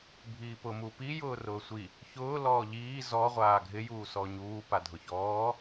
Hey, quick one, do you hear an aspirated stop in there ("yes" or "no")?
no